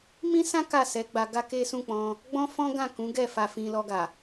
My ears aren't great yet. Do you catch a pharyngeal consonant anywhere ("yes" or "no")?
no